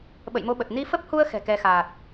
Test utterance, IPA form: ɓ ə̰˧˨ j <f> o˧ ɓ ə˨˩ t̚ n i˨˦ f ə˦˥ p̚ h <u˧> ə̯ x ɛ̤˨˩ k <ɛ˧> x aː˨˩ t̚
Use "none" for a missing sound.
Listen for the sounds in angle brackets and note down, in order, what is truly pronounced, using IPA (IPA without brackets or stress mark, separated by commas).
m, u˧, ɛ˧